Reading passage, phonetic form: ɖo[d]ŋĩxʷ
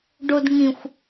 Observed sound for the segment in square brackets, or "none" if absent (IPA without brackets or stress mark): d